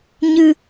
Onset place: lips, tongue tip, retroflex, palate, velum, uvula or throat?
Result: palate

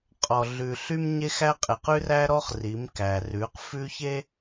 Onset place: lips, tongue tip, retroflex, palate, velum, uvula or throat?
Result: uvula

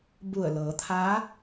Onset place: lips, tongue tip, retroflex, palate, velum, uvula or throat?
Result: lips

